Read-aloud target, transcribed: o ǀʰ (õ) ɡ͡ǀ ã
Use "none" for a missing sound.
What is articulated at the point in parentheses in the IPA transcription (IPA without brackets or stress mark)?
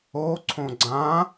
õ